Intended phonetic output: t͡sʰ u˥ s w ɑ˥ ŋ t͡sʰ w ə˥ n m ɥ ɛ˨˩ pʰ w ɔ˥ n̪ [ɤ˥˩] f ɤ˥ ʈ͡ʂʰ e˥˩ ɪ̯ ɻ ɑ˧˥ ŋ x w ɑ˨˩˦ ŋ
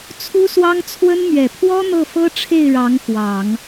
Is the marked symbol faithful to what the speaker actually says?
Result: yes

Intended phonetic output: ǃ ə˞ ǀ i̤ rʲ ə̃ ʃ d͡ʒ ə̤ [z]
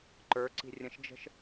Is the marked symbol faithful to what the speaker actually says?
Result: no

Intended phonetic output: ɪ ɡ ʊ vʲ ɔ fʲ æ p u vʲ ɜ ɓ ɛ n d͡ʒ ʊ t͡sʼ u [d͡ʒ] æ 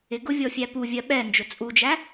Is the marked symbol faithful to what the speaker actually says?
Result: yes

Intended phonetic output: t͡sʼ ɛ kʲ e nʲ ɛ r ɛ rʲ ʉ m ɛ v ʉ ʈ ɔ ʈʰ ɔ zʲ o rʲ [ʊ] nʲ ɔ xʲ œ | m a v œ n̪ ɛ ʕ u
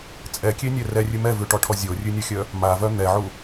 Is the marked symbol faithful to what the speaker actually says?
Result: no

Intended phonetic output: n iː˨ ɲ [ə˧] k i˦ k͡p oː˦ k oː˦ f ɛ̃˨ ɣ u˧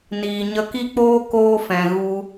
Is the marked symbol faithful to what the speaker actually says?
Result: yes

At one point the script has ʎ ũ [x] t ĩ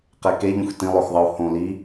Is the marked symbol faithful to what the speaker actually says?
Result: yes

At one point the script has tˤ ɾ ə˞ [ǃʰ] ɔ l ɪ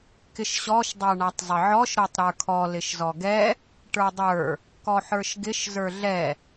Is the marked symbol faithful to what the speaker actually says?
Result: no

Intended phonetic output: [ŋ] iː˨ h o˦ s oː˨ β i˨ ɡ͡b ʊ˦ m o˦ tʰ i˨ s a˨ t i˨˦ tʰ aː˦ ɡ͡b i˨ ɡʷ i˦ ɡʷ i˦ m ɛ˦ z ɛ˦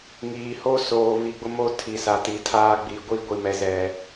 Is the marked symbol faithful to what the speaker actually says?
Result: yes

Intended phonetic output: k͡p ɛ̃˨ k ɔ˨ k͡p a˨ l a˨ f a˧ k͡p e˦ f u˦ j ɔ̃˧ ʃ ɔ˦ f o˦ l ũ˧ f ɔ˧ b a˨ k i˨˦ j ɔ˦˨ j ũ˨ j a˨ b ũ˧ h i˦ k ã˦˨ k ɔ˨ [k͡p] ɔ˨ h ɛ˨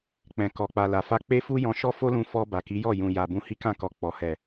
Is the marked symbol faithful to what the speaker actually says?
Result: yes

